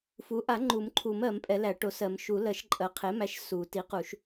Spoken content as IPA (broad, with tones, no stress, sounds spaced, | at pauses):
f u˩˥ ʔ a˨˩˦ ŋ͡ǃ u˨˩˦ m ǃʰ u˨˩˦ m ɜ˨˩˦ m pʼ ɛ˨˩˦ l æ˨˩˦ ʈ o˩˥ s ɜ˨˩˦ m ʃ u˨˩˦ l ɜ˨˩˦ ʃ ǃʼ ɜ˩˥ qʰ e˩˥ m æ˩˥ ʃ s u˨˩˦ t i˩˥ q u˨˩˦ ʃ